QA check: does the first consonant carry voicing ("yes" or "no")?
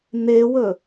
yes